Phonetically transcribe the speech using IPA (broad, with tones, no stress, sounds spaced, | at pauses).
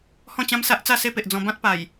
h ɔ̃˥˧ t͡ɕ ã˦ m s a˦ ʔ t͡s a˥˧ s e˦ p e˨ ʔ d͡z ɔ̃˧ b ã˦ t̚ p a˨˩ j